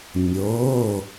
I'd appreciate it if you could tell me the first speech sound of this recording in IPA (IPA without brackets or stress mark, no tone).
nʲ